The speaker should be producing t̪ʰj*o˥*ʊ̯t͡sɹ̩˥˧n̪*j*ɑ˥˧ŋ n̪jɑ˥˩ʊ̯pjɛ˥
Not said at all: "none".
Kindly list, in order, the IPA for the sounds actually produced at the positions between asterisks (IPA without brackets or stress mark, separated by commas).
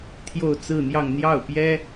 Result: o˥˧, j